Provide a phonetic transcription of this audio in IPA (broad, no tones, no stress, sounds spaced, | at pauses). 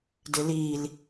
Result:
d ɪ l iː l